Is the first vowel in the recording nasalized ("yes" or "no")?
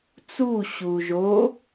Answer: no